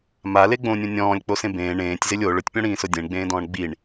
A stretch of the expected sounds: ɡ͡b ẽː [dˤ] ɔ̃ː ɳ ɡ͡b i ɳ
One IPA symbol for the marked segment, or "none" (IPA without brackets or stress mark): d